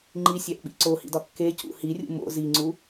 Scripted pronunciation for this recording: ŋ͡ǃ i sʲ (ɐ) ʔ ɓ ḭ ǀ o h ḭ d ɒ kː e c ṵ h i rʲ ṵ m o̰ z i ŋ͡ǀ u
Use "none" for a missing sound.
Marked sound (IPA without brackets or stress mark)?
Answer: æ